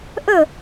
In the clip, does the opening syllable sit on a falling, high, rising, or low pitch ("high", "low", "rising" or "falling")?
falling